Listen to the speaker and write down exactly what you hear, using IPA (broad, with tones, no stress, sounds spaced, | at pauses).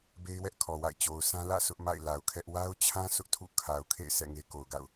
b e˦ ɪ̯ w ɛ˦ ʔ kʰ ɔ˨ w a̰˦˨ ɪ̯ t͡ɕ o˨ ʊ̯ sʰ ã˦ l ä̰˦˨ sʰ ʊ˦ ʔ m a̰˦˨ ɪ̯ l a˨ ʊ̯ kʰ ɛ˦ ʔ w a˦ ʊ̯ t͡ɕʰ ã˦ sʰ ʊ˦ ʔ tʰ ṵ˦˨ kʰ a˨ ʊ̯ kʰ ḛ˦˨ ɪ̯ s ɛ̰˦˨ ŋ e˦ k o˨ ʊ̯ ɡ a̰˦˨ ʊ̯